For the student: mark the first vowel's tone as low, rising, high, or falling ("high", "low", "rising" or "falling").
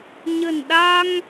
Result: low